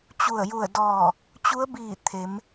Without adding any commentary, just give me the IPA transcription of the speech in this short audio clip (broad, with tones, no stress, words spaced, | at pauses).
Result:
t͡ɕu˧˩ə̯ju˧˩ə̯dɔː˧˩ | t͡ɕu˧˥ə̯biː˧˩ t̪ʰe˩˧m